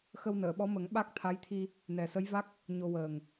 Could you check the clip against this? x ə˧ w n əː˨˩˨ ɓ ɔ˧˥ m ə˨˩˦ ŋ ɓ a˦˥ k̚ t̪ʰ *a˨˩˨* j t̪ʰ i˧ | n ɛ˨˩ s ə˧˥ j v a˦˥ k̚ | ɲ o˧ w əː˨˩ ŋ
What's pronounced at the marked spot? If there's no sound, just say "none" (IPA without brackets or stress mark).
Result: a˧˥